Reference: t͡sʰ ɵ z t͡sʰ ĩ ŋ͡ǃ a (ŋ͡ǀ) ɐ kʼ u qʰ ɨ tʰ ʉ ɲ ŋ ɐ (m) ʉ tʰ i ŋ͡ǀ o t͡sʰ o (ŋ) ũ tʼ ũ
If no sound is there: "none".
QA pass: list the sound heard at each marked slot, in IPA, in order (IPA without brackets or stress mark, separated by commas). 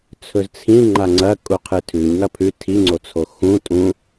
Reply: ŋ͡ǀ, pʰ, x